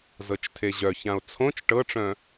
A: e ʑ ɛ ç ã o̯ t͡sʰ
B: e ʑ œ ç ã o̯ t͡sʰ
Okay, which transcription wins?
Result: B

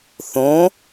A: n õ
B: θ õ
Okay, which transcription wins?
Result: B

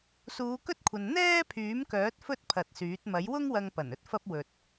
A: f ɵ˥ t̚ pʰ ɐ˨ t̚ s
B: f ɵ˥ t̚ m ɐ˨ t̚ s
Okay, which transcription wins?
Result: A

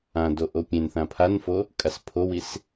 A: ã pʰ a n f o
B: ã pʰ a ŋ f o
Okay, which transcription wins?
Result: A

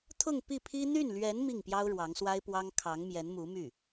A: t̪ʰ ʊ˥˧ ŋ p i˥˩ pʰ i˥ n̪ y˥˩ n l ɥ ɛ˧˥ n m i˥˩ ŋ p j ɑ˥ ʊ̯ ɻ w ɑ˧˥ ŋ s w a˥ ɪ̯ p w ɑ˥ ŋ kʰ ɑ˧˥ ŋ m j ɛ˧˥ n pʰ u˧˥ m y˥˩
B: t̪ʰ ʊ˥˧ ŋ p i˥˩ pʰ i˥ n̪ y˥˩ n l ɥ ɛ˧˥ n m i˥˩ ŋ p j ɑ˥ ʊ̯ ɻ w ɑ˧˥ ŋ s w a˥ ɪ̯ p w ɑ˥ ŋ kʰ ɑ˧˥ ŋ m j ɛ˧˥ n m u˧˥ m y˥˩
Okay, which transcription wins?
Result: B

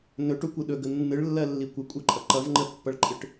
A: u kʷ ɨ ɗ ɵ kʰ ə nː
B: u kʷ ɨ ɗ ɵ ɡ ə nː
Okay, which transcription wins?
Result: B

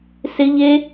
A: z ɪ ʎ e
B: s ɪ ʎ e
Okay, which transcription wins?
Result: B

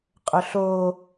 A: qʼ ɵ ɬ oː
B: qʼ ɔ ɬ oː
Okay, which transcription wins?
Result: A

